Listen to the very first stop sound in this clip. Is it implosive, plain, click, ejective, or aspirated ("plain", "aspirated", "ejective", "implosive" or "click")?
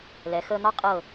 ejective